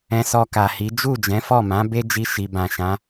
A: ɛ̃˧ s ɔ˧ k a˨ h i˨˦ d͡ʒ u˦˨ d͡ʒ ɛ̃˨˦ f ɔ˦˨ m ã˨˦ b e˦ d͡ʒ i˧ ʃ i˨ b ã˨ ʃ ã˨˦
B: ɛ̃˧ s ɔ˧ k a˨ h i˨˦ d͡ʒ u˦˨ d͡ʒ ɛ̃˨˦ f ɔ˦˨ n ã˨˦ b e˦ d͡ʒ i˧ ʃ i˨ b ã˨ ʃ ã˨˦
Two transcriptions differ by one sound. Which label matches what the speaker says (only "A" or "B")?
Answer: A